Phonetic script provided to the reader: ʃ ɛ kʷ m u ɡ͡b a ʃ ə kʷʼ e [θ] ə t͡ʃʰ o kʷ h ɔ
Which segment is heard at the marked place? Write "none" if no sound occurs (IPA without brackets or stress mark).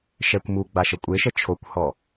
ʃ